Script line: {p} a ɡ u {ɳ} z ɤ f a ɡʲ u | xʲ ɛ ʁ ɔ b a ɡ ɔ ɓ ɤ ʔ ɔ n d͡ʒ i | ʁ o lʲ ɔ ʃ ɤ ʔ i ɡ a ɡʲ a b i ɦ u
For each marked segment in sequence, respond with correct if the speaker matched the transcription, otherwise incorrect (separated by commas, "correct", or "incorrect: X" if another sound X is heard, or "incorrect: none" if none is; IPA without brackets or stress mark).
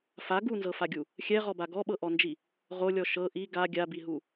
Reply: incorrect: f, incorrect: n